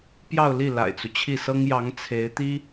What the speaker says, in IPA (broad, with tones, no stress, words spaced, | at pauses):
pjɑ˥˧ʊ̯li˥˩ la̰˨˩ɪ̯t͡su˦t͡ɕʰi˥˩ sɤ˥ŋjɑ˧˥ŋ t͡sʰe˧˥ɪ̯t̪i˥